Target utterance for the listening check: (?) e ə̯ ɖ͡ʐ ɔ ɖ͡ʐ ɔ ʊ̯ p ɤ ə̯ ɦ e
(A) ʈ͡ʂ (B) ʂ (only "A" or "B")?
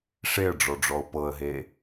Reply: B